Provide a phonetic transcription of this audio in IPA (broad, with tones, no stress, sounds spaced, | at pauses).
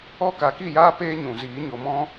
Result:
ɔ˦ k a˧ k i˦˨ j aː˦ p eː˦ ɲ ũ˨ z iː˨˦ ɲ o˨ m ɔ̃˦